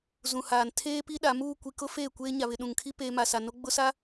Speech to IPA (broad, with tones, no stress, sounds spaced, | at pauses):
z ũ˨ h aː˨ n tʰ eː˦ p i˦ ɗ a˨˦ m uː˦˨ kʷ i˨ k ʊ˦ f eː˦˨ kʷ eː˦ ɲ a˨ β ɪ˨ ɗ ũ˨ ŋ kʰ i˦ p eː˦ m a˨ s a˨ n o˦ ɡ͡b ʊ˦ s a˦